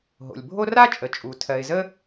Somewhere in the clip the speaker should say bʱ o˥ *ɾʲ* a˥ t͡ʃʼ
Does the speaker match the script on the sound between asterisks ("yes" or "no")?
no